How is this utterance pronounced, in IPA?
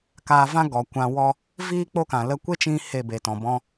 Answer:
k aː˧ v ã˦ ɡ ɔ˨ kʷ ã˧ w ɔ˦ | v iː˦ k͡p o˦ k ã˨ l ə˧ kʷ e˦ t͡ʃ ĩ˧ h e˦˨ b e˨ t ɔ̃˨ b ɔ̃˧

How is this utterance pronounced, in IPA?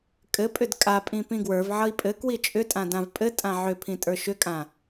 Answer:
kʼ ɘ pʼ ʏ d kʼ a pʼ ĩ p ĩ ɡ w ə˞ v ʕ ʌ i̯ pʼ ɘ k w i t͡ʃʼ ʏ tʼ ã d ã v pʼ ɘ tʼ ã ʕ ʏ pʰ ĩ tʼ ə˞ ʃ ʏ kʼ ã

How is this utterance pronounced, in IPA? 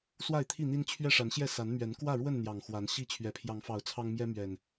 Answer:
s w a˥˨ ɪ̯ t̪ʰ i˥˨ n̪ i˦ n t͡ɕʰ ɥ ɛ˥˨ ʂ a˨˦ n ɕ j ɛ˥˨ s a˨˦ n m ɥ ɛ˨˦ n k w ä˥˨ ɻ w ə˥˨ n n̪ j ɑ˨˩ ŋ x w a˨˦ n ɕ i˥˨ t͡ɕʰ ɥ ɛ˨˩ pʰ j ɑ˨˦ ŋ f ɑ˨˦ ʊ̯ t͡sʰ ɑ˦ ŋ m j ɛ˦ m ɥ ɛ˨˩ n

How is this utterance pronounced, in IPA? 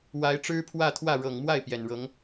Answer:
w a˧˥ ɪ̯ ʈ͡ʂ ɻ̩˥ pʰ w ä˥˧ t̪ʰ w ä˥˩ ɻ ɤ˨˩ ŋ m w a˥˩ ɪ̯ p j ɛ˨˩ n ɻ ɤ˧˥ ŋ

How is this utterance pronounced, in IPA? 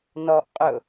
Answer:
n ɔ ʔ qʼ ʊ

